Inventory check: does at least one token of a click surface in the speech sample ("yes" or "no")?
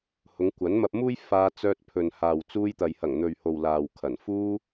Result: no